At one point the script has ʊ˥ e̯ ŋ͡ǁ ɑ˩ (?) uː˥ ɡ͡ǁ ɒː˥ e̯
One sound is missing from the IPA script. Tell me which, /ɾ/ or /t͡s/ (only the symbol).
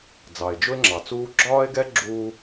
t͡s